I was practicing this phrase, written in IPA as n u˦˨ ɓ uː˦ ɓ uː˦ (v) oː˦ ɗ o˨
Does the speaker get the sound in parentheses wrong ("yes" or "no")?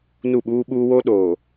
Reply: yes